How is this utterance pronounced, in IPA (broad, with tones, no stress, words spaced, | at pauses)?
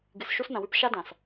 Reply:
ɡɨ˨sʃu˦snɐ̃˨wʉ˦p ʃa˦dã˨s